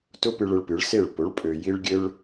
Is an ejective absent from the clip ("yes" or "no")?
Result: no